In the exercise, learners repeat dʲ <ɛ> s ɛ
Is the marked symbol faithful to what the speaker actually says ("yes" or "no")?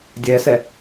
yes